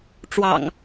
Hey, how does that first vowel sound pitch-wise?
low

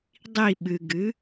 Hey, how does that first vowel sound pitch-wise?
falling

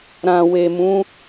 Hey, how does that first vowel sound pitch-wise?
low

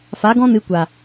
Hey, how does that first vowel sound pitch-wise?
rising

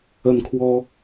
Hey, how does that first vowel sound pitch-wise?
rising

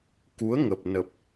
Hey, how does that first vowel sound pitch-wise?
rising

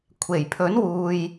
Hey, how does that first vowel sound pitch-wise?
low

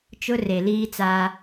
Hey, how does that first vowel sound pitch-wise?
high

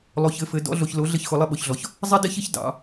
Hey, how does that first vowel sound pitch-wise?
low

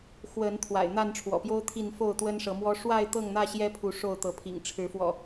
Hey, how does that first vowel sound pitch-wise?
rising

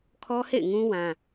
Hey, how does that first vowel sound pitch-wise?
high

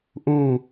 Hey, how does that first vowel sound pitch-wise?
falling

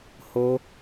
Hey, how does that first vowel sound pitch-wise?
high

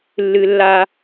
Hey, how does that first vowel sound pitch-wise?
high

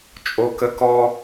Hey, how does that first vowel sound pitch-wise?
high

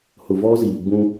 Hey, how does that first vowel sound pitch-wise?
low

